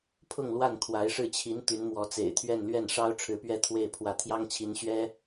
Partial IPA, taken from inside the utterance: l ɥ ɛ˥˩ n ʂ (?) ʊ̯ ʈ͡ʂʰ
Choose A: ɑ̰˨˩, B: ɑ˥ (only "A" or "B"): B